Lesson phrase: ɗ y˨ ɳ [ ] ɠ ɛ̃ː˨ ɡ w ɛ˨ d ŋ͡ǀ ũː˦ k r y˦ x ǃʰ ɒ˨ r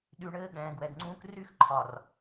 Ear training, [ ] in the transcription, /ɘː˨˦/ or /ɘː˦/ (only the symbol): ɘː˦